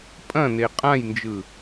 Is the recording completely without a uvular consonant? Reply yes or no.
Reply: no